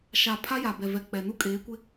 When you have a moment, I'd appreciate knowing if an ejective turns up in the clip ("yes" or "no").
yes